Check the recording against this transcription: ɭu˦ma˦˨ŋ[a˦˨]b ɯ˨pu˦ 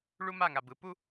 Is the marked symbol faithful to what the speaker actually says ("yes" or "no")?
no